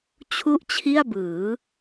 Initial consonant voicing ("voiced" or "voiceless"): voiceless